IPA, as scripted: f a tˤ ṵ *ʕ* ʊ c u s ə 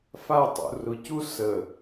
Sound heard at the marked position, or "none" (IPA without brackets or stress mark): r